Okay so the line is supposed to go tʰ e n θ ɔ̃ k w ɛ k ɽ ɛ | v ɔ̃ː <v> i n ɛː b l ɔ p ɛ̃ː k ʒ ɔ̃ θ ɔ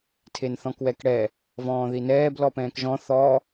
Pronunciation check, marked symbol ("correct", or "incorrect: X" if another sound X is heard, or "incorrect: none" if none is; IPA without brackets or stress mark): incorrect: ð